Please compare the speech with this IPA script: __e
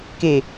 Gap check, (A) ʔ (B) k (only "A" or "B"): B